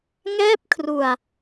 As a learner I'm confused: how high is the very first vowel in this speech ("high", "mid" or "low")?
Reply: mid